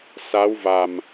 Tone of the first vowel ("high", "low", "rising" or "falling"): rising